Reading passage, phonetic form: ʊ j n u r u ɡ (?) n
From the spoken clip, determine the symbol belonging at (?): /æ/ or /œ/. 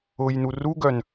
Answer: œ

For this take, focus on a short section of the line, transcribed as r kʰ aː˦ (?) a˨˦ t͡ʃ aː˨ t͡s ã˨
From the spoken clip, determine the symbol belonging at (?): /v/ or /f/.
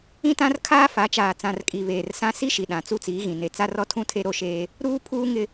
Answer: f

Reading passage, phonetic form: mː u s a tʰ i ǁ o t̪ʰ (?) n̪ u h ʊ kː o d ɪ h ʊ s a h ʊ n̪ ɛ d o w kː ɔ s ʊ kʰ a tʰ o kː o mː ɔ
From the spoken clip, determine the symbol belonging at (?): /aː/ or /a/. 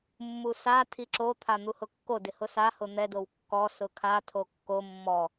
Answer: a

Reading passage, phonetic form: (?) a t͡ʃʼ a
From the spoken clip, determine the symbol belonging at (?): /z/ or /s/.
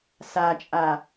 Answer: s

